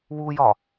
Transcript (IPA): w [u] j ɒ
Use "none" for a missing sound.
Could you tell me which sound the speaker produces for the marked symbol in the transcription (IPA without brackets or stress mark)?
u